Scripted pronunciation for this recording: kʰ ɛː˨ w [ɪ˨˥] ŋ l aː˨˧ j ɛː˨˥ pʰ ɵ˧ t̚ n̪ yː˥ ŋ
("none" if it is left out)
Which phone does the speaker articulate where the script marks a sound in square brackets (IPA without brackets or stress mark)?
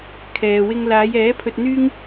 ɪ˥